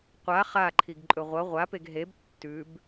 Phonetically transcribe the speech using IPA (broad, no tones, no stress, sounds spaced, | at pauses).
qʷ a χ a ǃʰ i ɡ ǃʼ ɵ ʁʷ ɐ ʁʷ a p e ɡ ɦ e b tː ʉ b